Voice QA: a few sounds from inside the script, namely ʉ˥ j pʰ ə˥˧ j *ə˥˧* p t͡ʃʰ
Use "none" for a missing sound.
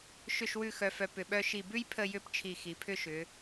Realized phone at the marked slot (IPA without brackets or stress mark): ʏ˥˧